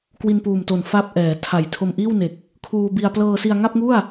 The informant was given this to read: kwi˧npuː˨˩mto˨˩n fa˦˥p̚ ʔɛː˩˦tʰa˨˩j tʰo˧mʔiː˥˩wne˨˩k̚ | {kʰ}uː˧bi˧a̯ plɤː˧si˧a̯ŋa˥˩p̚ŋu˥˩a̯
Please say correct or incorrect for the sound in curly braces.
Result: correct